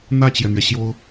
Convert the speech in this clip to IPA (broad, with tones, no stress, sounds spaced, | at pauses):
n̪ ä˥˩ t͡ɕ j ɛ˩ n̪ ɥ ɛ˩ ɕ j o˥ ʊ̯